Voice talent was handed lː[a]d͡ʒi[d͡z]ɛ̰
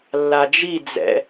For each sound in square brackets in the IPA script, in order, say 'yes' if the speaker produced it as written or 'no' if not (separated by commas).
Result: yes, yes